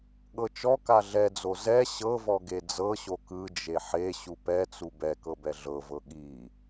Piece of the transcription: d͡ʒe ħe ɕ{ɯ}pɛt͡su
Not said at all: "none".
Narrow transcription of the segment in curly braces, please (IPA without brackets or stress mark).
u